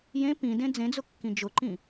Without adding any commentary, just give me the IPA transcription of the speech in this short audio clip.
jẽ pĩdẽ d͡zẽd͡zʊkːĩ d͡ʒʊǃĩ

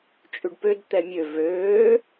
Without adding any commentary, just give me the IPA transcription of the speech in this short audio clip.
t͡ʃʼʉɖpød t̪ɛmʲø vøː

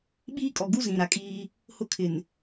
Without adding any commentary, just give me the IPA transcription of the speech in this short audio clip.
ɓiː˦kʼɔ˨ɡu˦ zĩ˨ɾa˨kʼiː˦ | hʊ˦kʰɪ˨n

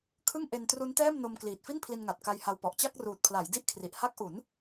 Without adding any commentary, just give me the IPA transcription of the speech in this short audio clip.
kʰɯ˥˩ŋʔe˧n tru˦˥ntɛː˥˩mno˧m kliː˨˩t̚fi˥˩npʰli˧nŋa˨˩t̚ ka˧jha˧wpɔ˨˩ʔ t͡ɕa˥˩k̚ruː˨˩t̚pʰla˩˦j di˥˩ʔkʰri˨˩ʔ ha˦˥k̚ ʔu˩˦n

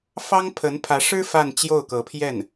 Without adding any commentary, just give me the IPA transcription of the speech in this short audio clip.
fɑ˥ŋpʰə˧˥npʰä˧˥ʂɻ̩˥ fa˥˧nt͡ɕjo˥˩ʊ̯kɤ˧˥pʰjɛ˥˩n

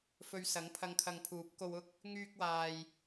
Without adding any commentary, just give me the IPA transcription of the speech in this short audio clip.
fɵ˧ɥsɐ˨˥ŋpʰɐ˧ŋkʰɐ˧ŋ pʰuː˨˥p̚ko˧wʊ˥k̚ | ŋyː˧k̚waː˨j

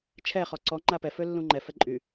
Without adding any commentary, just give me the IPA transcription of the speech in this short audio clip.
t͡ʃʰɛ χɔǀɔ ŋ͡ǃapɛ følːũŋ͡ǃɛ fɛǃʼy

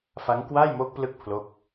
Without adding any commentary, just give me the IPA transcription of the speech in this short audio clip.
fa˦˥ŋkwaː˥˩jmo˦˥k̚plɯ˦˥k̚ pʰlo˦˥k̚

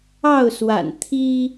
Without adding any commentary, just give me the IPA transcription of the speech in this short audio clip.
ɑ˥˨ʊ̯swa̰˨˩n t̪ʰi˦

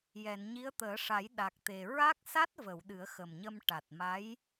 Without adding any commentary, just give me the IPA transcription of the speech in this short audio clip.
jɛ˨˩˨nɲi˧˥ə̯t̪əː˨˩˦ʂa˨˩˦j ɗa˨˩k̚t̪e˨˩ ɹa˦˥k̚sa˦˥t̚və˨˩˨w ɗɨ˨˩˦ə̯xə˨˩mɲə˧m ʈa˨˩t̚ma˧˥j

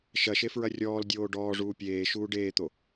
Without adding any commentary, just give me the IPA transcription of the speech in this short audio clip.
ʃɐʃefɹɐ rʲɔːldʲoː ɖɔːʐuː pʲeːʃuː ɖeːt̪o

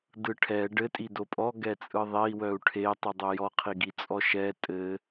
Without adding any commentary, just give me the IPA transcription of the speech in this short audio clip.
dɯʈʰɛ ɖɘ tʼidopʼɔ ɡɛt͡sʼɯðˤei̯ wœu̯ʈʰe tˤidˤojɔ qʰiɡit͡sʼɔʃɛ tʼɘ

